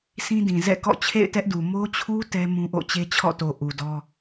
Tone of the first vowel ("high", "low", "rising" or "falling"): high